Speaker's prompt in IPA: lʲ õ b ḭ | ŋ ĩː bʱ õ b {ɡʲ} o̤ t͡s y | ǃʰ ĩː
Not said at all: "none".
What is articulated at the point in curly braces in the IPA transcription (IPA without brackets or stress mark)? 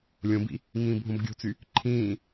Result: ɡʲ